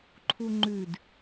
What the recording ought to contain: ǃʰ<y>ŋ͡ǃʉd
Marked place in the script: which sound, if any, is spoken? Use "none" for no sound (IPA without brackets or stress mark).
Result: u